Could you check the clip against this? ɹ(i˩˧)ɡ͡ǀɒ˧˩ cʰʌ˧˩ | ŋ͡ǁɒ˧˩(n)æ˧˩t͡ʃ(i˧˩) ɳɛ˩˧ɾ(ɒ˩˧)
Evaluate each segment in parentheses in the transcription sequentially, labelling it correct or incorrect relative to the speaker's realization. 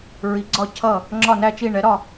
correct, correct, correct, incorrect

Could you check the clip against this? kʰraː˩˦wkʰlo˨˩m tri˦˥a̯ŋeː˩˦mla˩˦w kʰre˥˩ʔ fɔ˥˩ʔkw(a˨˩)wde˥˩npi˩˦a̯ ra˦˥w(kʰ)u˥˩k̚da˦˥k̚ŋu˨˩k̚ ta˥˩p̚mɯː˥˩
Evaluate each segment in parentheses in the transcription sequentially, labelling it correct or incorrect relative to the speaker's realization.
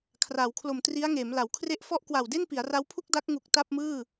correct, incorrect

